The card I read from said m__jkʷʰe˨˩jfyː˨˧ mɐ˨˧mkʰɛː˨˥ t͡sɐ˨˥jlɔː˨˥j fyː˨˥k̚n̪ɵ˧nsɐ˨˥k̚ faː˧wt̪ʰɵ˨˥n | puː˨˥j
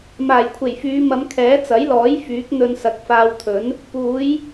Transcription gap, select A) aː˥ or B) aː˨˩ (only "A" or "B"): B